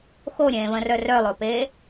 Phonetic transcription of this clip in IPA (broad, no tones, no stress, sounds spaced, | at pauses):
x o ɾʲ ẽː β ə̃ r œ r œ lˠ o p eː